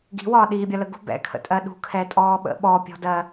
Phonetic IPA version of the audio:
ɡ i̤ w ɒː ɗ iː bʲ ɒ l ə ɡ ṳ b ɛ̰ kʰ ə̰ tʼ ɜ ɗ ṳ kʰ ɛ tʼ ɔː ɓ ə̰ ɓ ɔ pʲ ɔ̤ d ɜ

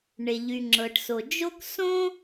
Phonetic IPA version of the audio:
ɳ e˩ ʎ y˩ ŋ͡ǁ ɤ˩ ʈ s o˩ d͡ʒ o˥ k s õ˥

